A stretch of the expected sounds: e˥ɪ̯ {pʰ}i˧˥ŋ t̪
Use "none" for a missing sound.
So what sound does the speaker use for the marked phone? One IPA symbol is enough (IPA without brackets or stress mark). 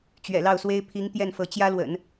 pʰ